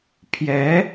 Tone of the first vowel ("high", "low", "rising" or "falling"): rising